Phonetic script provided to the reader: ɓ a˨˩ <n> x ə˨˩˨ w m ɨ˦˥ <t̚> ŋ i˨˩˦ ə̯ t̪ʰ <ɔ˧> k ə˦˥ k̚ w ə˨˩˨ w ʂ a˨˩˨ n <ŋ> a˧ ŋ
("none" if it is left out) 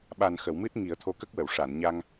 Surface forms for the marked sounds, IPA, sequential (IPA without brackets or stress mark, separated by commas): n, t̚, o˧, ɲ